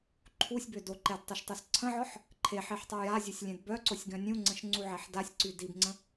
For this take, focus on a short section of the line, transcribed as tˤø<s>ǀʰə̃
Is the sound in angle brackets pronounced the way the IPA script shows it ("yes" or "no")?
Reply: yes